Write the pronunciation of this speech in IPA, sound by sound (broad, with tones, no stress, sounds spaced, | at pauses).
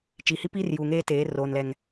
t͡ʃ i˨ h i˦ p iː˦ r j uː˨ ŋ eː˦ t eː˨˦ r oː˨ n l ɛ˨ ŋ